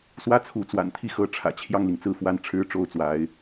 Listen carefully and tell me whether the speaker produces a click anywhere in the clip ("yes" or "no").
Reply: no